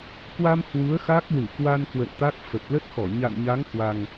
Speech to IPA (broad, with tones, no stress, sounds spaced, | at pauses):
k w a˧ m h w u˨˦ ə̯ x a˦˥ k̚ l ɨ˧˩ k w a˧ n k w ə̰˧˨ n t̪ a˦˥ k̚ f ə˨˩ p̚ l ə˦˥ t̚ x ɔ˧˩ ɲ a̰˧˨ n ɲ a˨˦ ŋ h w a˨˩ ŋ